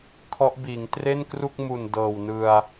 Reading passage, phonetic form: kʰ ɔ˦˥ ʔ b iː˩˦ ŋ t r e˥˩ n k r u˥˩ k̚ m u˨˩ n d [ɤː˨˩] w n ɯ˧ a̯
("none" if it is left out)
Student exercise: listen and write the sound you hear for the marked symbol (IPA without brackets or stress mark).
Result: ɤː˨˩